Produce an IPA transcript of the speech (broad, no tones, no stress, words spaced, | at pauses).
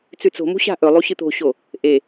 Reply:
t͡sʉt͡so̤mṳ ɕa̤ʔɵ lˠuɕɨt̪o̤ɕo | ʔe